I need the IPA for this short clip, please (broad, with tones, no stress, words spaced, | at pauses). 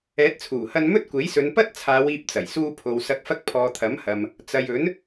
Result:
ɛː˨˥t̚t͡sʰuː˨˩hɐ˧n mɵ˥t̚kʷe˨˥jsɵ˨˧n pɐ˥t̚t͡sʰaː˨˧w iː˧p̚t͡sɐ˨˩jsuː˧pʰo˨w sɐ˨˥k̚fɐ˧k̚ pʰɔː˨t̪ʰɐ˨˥mhɐ˨m | t͡sɐ˨jɵ˨˥n